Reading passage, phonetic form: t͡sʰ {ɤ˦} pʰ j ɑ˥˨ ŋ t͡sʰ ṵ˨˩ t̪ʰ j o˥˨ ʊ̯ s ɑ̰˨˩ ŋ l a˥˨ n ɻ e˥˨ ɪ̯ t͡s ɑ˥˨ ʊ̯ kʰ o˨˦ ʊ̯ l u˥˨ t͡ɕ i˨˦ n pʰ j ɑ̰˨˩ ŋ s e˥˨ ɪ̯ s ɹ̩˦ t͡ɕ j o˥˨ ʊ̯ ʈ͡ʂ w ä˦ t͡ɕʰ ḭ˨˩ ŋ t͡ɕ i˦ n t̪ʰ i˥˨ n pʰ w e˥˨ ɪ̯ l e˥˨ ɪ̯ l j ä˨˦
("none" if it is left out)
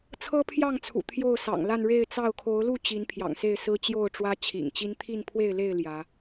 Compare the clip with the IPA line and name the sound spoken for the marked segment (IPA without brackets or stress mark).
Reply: ɤ˦